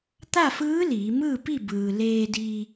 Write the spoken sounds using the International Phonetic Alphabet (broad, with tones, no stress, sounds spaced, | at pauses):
t̪ a˥˨ f ɯː˧˥ l iː˩˧ m ɯː˥˨ p i˥˨ b ɯː˩ l eː˧ d iː˧